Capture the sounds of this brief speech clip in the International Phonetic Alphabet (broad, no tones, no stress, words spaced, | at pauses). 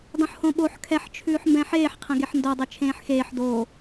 dˤõħhõɓoħ kʰɛħt͡ʃʰʉːħ mbɛ̃ħeːħqʰẽ ɡeħndodˤe t͡ʃʰẽːħxeːħ doː